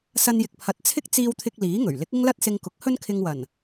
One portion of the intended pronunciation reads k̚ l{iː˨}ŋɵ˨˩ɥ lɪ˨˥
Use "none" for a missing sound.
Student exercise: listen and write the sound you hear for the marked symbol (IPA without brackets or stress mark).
iː˨˥